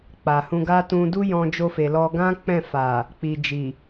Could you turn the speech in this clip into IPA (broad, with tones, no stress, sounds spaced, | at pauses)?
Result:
k͡p a˨ h ũ˧ ɡ a˦ t ũ˧ d u˦ j ɔ̃˧ d͡ʒ o˧ f e˨ l ɔ˧ ɡ ã˦ k͡p ɛ̃˦˨ f a˨ | k͡p i˨ d͡ʒ i˨